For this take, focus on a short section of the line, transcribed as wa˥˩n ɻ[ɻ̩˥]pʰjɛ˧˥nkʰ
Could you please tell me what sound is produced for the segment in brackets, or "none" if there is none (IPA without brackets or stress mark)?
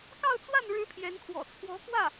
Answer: ɻ̩˥